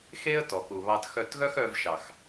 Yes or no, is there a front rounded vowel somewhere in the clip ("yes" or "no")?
yes